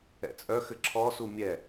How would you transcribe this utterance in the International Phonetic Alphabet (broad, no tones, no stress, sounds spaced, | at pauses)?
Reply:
ɛ̰ t͡sʼ œ x ɘ ǁʰ ɔ s u mʲ ɛ